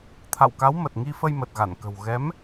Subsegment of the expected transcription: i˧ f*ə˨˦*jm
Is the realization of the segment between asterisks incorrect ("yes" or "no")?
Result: yes